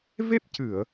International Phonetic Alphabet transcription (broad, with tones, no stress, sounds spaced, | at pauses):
v e˦˥ p̚ c ɨ˨˩˨ ə̯